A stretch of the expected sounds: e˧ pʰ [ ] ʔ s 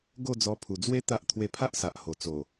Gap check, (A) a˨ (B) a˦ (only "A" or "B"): B